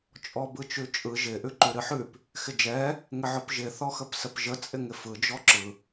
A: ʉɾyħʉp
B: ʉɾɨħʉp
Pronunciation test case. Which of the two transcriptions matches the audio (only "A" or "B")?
B